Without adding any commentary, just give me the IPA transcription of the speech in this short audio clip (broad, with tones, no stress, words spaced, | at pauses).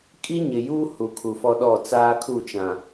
kʼi˦ɲɪ˨juː˦ hu˨kʰu˨fɔ˦ɗɔ˦˨ t͡saː˦kʰu˦˨t͡ʃã˨